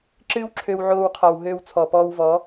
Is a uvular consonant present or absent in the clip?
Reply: present